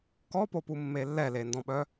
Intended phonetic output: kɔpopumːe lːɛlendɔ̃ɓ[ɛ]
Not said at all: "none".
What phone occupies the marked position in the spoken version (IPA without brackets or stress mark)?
œ